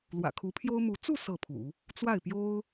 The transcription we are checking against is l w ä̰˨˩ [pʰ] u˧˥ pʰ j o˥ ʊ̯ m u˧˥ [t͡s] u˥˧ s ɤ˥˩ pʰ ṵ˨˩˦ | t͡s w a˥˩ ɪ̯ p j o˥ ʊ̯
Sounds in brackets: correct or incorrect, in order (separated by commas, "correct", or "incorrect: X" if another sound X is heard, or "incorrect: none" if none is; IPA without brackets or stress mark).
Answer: incorrect: kʰ, correct